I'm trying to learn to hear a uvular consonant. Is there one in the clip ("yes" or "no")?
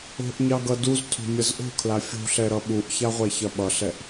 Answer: yes